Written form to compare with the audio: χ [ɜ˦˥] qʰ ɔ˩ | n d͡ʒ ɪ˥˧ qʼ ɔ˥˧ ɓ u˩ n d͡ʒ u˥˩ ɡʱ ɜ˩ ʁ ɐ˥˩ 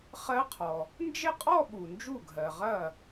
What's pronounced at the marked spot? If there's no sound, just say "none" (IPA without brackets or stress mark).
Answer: ɜ˦˥